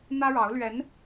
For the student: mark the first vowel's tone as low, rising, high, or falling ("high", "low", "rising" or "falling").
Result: high